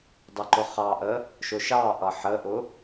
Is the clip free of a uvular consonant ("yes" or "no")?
no